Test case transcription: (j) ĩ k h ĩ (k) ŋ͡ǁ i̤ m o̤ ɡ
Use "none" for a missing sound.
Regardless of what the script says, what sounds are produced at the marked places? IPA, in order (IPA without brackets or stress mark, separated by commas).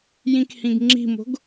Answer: j, ɡ